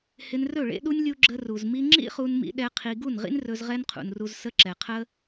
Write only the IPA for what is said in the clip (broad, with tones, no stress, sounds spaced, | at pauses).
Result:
h ɪ˧ n r ɵ˦˨ ɭ ḛ˦ ɗ u˦ nʲ lʲ u˧ ɡ͡ǁ ə˧ r u˨ z m i˧ ŋ͡ǁ ḭ˦ χ u˧ n m ḭ˧ ɗ ɛ˦ qʰ i˧ ɡ u˦˨ n ʁ ḭ˦ n r ɵ˧ z ʁ ɛ˦ n qʰ ṵ˨ n r u˧ z s ə˧ ǁ ɛ˨ qʰ ə˦